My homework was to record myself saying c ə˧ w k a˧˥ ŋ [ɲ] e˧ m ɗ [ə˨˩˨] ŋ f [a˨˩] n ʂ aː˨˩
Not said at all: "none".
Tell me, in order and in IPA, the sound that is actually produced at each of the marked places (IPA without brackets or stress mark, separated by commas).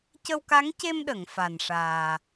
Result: c, ə˨˩˨, a˨˩